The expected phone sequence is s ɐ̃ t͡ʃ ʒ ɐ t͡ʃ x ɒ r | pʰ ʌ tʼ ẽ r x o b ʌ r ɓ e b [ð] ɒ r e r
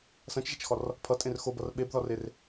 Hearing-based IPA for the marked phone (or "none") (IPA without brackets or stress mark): ð